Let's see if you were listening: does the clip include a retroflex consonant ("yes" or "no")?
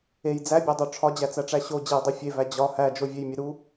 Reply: yes